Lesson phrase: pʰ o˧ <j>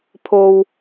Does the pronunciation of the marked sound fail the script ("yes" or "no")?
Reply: yes